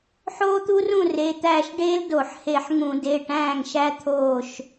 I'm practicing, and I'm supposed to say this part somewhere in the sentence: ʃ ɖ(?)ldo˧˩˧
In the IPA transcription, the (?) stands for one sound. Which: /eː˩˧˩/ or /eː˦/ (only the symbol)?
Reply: eː˦